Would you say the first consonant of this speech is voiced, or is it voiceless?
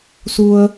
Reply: voiceless